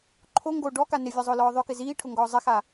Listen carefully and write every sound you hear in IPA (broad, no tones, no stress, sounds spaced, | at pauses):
ǃʰ o ŋ ɡ o ɖ ɔ k a n ɪ vʲ ɔ zˤ ʊː l ɔː ðˤ ʊ k ɪ z iː ʈʰ ʊ ŋ ɡ ɔː zˤ ɪ x a